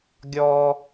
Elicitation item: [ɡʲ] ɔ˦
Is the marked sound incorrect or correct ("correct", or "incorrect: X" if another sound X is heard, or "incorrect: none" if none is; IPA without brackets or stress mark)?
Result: correct